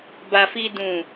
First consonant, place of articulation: labial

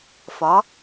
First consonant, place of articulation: labial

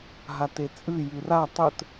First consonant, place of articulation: glottal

